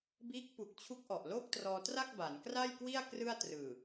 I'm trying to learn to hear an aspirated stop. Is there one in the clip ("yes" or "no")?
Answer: yes